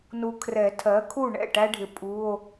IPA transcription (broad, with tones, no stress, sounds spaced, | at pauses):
n u˨ kʰ r ɛ˨˩˦ tʰ ɜ˩˥ kʰ u˥˩ ɳ ɛ̰˥˩ ʈ æ˥ ɖʱ ɪ˨ pʼ u˧˥˧ o̯